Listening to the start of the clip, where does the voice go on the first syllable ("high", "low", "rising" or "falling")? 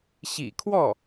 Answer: low